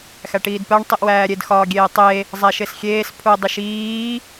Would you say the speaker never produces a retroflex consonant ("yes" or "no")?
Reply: no